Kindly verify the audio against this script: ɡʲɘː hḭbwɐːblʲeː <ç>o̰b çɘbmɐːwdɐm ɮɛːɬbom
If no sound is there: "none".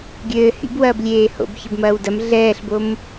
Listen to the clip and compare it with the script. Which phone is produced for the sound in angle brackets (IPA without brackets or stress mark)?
h